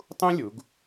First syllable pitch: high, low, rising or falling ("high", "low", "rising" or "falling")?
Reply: high